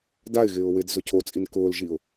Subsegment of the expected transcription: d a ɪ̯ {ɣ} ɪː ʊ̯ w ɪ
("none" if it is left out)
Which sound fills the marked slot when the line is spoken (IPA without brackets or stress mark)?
ɣ